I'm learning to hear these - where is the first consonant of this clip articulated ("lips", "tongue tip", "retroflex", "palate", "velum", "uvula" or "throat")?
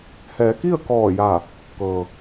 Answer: throat